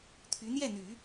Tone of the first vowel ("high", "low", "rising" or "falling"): rising